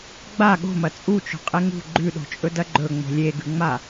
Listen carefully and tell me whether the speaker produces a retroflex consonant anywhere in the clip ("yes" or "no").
no